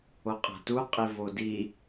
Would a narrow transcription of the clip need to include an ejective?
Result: yes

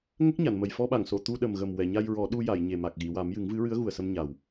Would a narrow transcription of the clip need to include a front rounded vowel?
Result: no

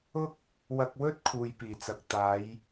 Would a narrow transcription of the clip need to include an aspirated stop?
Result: yes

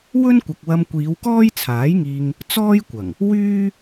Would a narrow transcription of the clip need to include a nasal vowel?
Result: no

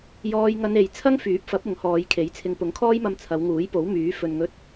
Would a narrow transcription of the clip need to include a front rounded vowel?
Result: yes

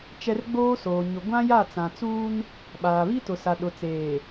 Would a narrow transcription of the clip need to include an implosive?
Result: yes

